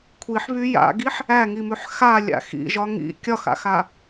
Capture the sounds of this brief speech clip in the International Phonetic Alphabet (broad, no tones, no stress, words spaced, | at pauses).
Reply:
kʷʰiħβy ja̰ɡiħ | æŋimʉħ xalʲa̰x ḭʒɒ ŋḭ kʲɒxa̰xa